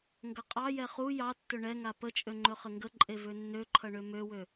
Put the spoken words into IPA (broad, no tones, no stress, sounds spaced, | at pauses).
ŋ ɡ ʌ qʼ ɑ j ɛ χ u j ɑ tː ɵ ɳ ɛ ŋ a p ə t͡ʃʼ ø ŋ͡ǃ ɵ χ ə ŋ ɡ ə ǃʼ e v ø nː ø ǃʰ ʌ ɳ ø m ø w ø